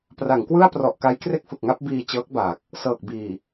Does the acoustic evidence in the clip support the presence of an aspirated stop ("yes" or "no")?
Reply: no